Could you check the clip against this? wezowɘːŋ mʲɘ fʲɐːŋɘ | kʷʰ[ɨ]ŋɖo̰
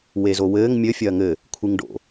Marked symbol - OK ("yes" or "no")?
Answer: yes